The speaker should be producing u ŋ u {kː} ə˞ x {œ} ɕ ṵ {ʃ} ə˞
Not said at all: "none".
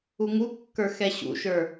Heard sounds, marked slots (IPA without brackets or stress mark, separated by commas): kː, ɛ, ʃ